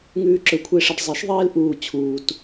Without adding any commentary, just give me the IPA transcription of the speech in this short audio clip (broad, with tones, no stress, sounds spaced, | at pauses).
ŋ ʉː˦ ǁ ɵ˧˩˧ kʷʰ e˦ ʂ ɐ˦ ɖ zˤ e˩˥ ʃ ðˤ eː˦ l ʔ uː˨˩ t͡ɕʰ uː˨˩ t